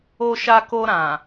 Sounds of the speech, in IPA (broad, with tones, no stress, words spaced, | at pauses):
o˧ʃa˧ko˧ ɾã˨